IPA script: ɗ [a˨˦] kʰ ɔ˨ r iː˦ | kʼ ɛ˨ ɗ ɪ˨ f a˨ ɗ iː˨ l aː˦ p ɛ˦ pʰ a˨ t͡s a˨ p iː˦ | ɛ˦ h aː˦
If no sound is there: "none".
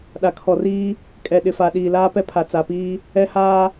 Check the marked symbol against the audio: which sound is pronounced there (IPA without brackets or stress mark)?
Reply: a˨